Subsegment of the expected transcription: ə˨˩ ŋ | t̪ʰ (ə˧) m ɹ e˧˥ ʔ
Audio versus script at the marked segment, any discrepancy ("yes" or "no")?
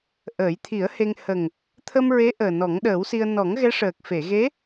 no